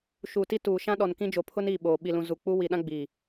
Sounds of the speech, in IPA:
ʃ uː˨ t i˦ t uː˨ ʃ ã˦ ɗ ɔ˨ n k ĩ˦ d͡ʒ o˨ pʰ ʊ˦ n i˦˨ ɓ oː˨ ɓ i˨ l ũ˨ z u˨ k͡p u˦ w i˨ ɗ ã˦ ɡ͡b iː˨

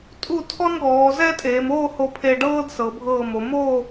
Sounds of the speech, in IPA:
tʼ u˧˩ tʰ ɔ˥ n ɡ ɔː˩˧ z ɛ˥ tʼ eː˩˧ m oː˥˧ h o˧ pʰ e˧ ɖ ɤː˥ d s ɤ˩˧ bʱ ɤː˧˩ m o˩˧ m oː˥˧

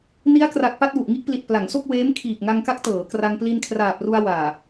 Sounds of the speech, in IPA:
n i˦˥ a̯ k r a˨˩ k̚ p a˥˩ t̚ w u˨˩ ʔ ŋ i˥˩ ʔ p l i˨˩ t̚ p l a˩˦ ŋ s o˥˩ k̚ w eː˦˥ m kʰ iː˨˩ k̚ ŋ a˧ ŋ k a˦˥ k̚ t ɤː˩˦ k r a˧ ŋ p l i˧ n kʰ r aː˨˩ p̚ r u˧ a̯ w aː˨˩

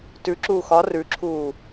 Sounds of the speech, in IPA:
t ʉ ǁ uː x ɒ r ʉ ǁʰ uː

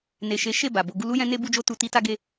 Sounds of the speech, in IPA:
n e˨ ʃ e˨˦ ʃ e˦˨ b a˨ b o˧ ɡ u˦ l u˦ j ɛ̃˦ n e˦ b u˦ d͡ʒ o˦ t u˧ t i˦ t a˦ ɡ e˦

